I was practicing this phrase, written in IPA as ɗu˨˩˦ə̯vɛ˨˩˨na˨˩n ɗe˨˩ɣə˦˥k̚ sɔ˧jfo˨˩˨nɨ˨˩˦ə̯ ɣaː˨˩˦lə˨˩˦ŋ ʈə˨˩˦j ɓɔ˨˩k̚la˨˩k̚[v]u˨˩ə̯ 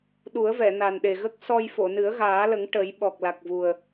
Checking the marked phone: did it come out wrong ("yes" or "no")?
no